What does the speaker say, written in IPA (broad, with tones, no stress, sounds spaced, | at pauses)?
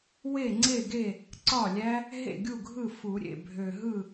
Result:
w e˥˩ ŋ͡ǀ e˥˩ ɡ e˥˩ | ǀ ɒ˥˩ lʲ æ˦˥ | ɦ ḛ˥˩ ɡʲ u˥˩ ɡʱ ɯ˥˩ f u˨˩˦ ɾʲ ḛ˥˩ bʱ ø˨˩ ɦ ɯ˥˩